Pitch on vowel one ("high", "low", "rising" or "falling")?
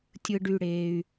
high